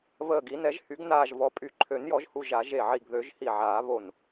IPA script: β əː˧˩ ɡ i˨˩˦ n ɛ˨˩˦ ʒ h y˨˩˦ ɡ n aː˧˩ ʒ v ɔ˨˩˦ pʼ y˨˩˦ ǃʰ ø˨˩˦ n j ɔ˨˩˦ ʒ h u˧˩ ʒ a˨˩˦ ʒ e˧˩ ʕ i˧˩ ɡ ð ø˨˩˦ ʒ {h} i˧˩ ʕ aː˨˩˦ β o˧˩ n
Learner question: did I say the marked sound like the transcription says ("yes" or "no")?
yes